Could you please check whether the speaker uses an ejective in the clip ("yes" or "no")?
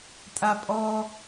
yes